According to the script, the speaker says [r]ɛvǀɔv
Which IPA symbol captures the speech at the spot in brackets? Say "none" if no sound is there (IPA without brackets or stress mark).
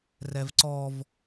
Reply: r